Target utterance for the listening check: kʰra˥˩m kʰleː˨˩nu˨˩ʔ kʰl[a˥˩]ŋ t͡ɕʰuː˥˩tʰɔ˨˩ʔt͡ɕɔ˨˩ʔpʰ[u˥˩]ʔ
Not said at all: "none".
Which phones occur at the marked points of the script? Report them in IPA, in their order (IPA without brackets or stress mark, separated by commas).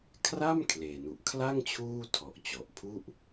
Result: a˥˩, u˥˩